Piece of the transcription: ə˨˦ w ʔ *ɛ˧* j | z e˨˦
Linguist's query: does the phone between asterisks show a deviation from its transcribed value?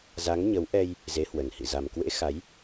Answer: no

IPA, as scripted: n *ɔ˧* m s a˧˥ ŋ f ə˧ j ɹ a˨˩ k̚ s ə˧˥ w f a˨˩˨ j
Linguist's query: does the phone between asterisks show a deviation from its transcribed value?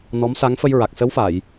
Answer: yes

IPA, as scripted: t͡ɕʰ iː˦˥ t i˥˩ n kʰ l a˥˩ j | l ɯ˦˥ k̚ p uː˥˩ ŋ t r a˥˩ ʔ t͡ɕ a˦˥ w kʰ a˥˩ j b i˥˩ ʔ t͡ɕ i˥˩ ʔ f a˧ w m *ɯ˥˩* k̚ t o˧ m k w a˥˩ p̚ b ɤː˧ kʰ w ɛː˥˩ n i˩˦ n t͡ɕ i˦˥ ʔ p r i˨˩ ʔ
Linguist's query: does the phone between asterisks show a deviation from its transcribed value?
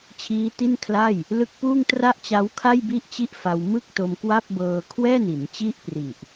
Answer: no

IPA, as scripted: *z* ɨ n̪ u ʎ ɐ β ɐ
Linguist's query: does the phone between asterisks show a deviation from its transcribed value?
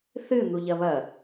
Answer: yes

